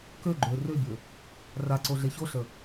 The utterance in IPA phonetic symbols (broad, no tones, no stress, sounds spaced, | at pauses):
k ø ɡ͡ǃ ø r ø bʲ ø | r a ǀ o ɮ e ç o ɬ ə